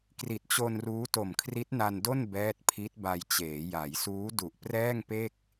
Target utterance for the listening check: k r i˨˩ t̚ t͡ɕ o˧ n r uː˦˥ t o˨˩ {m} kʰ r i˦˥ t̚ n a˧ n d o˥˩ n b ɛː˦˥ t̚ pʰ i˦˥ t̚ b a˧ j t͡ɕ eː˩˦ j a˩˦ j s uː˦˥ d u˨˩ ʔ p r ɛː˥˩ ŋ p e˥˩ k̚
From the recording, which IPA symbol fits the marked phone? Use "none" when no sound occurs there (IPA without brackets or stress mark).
m